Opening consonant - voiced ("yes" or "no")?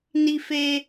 yes